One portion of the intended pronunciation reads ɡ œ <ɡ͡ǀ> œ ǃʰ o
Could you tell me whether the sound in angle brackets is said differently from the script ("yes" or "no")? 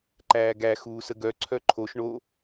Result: yes